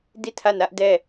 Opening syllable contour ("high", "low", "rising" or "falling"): falling